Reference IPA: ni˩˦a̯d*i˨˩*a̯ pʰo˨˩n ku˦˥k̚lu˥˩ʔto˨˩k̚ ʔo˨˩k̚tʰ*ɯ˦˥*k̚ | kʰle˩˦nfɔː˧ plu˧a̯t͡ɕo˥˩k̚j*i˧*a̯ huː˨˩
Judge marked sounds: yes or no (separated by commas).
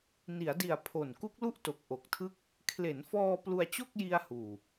yes, no, yes